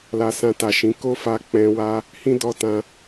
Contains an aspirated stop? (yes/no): no